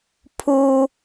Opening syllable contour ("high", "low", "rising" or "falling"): high